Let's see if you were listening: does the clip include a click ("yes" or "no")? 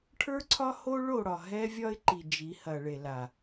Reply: yes